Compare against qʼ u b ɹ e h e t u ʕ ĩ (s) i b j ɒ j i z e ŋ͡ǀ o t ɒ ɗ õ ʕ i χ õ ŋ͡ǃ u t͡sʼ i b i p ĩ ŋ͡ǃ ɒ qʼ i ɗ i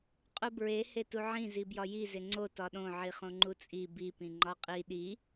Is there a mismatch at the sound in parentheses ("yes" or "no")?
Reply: yes